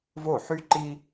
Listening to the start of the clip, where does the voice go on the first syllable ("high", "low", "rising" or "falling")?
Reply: falling